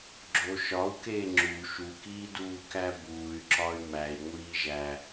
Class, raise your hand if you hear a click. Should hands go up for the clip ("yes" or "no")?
yes